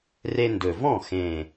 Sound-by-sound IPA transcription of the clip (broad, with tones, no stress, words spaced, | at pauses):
re˦ndɵ˨˩ vɔ̃˥˩xẽ˨˩